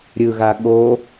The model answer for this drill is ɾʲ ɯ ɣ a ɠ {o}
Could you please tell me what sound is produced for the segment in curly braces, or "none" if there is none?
o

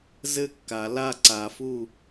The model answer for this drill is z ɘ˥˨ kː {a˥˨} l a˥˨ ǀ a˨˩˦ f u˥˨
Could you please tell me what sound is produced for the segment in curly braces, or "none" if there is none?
a˨˩˦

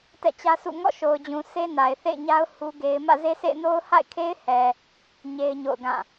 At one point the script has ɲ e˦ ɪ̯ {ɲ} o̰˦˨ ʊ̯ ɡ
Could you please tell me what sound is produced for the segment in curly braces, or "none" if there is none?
ɲ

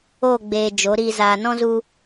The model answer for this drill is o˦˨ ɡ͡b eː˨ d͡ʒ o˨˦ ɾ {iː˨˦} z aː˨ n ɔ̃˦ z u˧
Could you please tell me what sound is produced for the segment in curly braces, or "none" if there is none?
iː˧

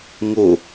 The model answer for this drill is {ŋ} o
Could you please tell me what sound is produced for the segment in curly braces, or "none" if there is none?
ŋ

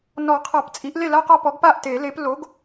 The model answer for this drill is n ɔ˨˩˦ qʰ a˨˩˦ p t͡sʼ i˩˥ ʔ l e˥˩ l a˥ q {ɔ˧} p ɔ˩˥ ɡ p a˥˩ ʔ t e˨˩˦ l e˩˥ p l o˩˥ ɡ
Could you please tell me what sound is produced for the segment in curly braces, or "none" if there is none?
ɔ˧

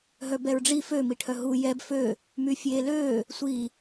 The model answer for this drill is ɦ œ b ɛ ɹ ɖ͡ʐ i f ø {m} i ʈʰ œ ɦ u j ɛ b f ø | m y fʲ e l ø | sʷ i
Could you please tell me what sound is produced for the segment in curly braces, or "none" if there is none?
m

